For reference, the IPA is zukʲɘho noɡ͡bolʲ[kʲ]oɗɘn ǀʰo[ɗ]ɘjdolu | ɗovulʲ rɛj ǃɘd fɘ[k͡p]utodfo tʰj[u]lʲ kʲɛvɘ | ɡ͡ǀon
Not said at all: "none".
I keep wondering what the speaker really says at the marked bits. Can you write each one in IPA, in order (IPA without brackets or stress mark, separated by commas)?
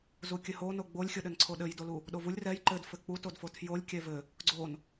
xʲ, ɗ, k͡p, o